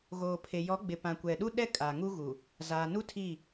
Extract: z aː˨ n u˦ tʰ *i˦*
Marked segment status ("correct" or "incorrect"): incorrect